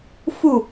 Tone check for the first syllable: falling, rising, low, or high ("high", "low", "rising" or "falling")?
falling